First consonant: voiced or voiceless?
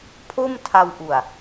voiceless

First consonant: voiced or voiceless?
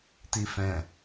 voiceless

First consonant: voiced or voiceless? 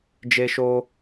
voiced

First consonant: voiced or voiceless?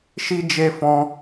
voiceless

